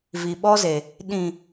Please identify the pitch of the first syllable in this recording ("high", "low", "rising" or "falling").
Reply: low